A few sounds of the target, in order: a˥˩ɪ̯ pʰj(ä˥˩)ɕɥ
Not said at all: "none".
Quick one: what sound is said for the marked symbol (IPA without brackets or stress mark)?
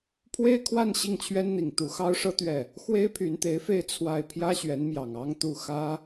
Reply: ä˥